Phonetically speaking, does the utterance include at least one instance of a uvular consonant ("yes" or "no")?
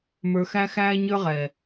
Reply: yes